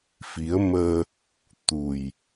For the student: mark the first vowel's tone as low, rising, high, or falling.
rising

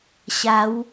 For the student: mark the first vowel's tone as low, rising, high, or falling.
rising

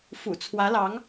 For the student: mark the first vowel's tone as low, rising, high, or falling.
low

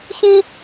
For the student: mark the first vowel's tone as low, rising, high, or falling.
high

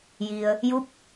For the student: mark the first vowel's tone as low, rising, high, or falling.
low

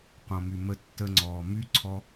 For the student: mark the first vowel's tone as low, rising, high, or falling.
low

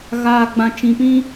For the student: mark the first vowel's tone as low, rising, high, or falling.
low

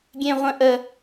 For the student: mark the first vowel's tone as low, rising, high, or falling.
high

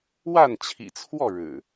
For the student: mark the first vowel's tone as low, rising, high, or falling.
falling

